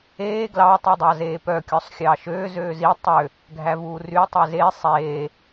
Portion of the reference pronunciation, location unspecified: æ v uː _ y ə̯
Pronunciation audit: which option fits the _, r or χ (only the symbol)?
r